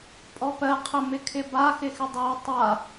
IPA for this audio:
pʼɔpɜ qʰəmɪkʰɪba xɪxɪdˤɜ tˤa

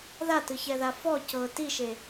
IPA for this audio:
ðatɯçɛða fɔ cɤ tiʃe

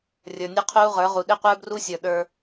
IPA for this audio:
rʲə˞˨nʲe˦ qʰuː˦ʁə˞˨˦ʁu˨ ɗe˦qʷə˞˦bru˦sʲə˞˨ ɗə˞˦

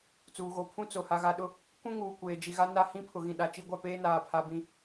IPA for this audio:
t͡suː˨ɣo˨ pʰũ˦t͡so˨ ha˨ɣa˨ɗʊ˦˨ | kũ˦ŋuː˨ kʷeː˨d͡ʒi˨ɣa˦ na˦hĩ˦ pʰʊ˨ɣĩ˨ ɗa˨t͡ʃi˦ɡʷa˦˨ peː˦naː˨pʰa˨ bĩ˨

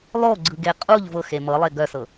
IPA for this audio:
lˠoɡ͡ǀɯɡe qʼuʎ vɤxe mɤlˠe ɡœsɤ

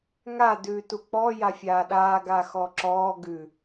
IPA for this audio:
ŋa dʉːtuk͡pɔ jafʲaːɗaː ɡaxɔǁɔː ɡʉ

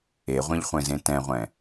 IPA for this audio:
eʁʷẽʎχʷẽzẽ tɛ̃ʁʷɛ̃

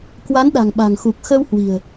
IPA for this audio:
kwa˨˦nɗa̤˨˩ŋɓa̤˨˩ŋxu˨˩k̚ xə˧whwi̤˨˩ə̯

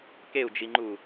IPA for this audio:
keu̯d͡ʒiŋ͡ǃu

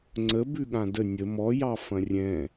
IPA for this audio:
ŋ͡ǀə bʉɠãdə nʲə mɔjɑ fɐ̃rʲɛ̃

